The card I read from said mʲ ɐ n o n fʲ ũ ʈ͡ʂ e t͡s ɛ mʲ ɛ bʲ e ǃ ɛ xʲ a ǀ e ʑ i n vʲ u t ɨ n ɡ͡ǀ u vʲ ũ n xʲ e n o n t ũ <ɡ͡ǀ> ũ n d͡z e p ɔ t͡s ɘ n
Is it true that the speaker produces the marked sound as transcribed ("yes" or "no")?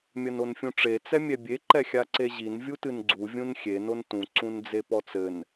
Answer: no